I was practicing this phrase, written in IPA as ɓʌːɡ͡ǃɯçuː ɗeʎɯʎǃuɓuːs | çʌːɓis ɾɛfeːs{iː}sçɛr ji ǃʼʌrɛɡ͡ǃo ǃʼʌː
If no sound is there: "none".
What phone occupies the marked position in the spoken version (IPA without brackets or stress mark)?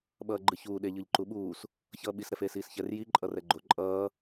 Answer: iː